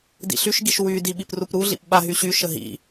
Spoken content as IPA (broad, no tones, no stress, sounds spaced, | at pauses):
d ḭ ɬ y ʃ ɡ i ʃ w y d i ɓ i p r u p ɾ u ɮ ḭ p ɓ a ɦ y ɕ y ʃ ə ɦ ḭ